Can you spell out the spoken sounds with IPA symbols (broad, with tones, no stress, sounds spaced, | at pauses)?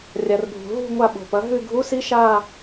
rʲ a˩ r bʱ ṳ˩ ɦ ṳ˦˨ ŋʷ a˦˨ ɓ o̤˩ p ɐ˩˥ ɦ ʉ˦˨ ɡʱ u˧˥˧ s i˦˥ ʃ a˦˨